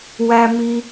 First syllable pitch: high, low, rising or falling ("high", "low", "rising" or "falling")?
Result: low